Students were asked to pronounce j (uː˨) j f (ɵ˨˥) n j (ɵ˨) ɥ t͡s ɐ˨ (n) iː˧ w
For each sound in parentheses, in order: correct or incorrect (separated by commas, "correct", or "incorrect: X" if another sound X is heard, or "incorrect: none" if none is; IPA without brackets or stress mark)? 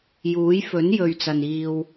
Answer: incorrect: uː˨˥, correct, correct, correct